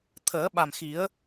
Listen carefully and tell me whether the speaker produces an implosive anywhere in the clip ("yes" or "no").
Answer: yes